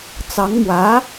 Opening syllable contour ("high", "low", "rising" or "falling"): rising